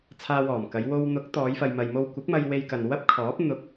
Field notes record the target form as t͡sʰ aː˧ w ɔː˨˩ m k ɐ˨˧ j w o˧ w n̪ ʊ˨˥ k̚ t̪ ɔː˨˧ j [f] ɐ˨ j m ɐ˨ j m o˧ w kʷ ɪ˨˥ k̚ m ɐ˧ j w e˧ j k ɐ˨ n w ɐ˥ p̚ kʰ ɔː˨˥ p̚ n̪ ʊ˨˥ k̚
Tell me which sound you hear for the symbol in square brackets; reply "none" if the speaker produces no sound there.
f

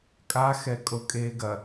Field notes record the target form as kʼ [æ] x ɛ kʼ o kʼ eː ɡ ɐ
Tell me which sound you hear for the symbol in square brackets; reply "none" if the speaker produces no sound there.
a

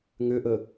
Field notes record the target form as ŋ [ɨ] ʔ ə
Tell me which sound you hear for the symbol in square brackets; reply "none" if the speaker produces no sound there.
ʏ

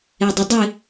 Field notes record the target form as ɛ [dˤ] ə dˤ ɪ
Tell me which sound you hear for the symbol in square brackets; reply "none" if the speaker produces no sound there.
dˤ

